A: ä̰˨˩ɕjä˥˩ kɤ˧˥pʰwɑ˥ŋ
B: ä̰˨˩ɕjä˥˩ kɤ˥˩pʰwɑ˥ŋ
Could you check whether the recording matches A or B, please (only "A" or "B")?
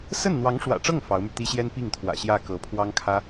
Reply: A